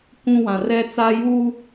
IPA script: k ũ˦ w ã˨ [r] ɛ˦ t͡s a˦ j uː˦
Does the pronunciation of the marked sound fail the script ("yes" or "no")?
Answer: no